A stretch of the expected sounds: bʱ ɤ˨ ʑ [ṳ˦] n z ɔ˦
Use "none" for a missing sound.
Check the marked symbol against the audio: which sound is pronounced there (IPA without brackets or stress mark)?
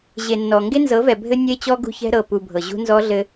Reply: ṳ˦